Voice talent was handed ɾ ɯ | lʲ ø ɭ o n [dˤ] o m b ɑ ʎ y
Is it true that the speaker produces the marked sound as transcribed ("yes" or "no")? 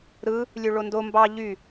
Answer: no